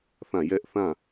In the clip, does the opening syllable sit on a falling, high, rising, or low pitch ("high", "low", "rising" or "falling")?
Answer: falling